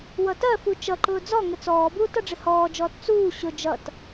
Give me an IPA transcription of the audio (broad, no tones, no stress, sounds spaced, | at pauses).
w ʌ t ɜ f u t͡ʃ ʌ ǃ ʊː d͡z ɔ ŋ ə t͡s ɔː b uː t ʌ ɖ͡ʐ ɪ h ɔː d͡ʒ ɔː t t͡s uː ɕ ʊ d͡ʒ ʌ t